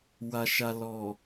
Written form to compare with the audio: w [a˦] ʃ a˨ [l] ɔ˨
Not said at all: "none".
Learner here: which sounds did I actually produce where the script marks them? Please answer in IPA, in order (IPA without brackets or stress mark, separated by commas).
a˨, l